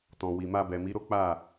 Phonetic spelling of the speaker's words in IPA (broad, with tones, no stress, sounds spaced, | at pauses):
t ɔ̃˨ w i˨ m a˧ b ɛ˨ m i˨˦ ɾ o˦ k͡p a˦˨